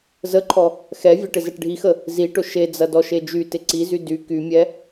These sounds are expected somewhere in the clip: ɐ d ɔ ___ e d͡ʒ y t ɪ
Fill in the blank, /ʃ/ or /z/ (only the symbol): ʃ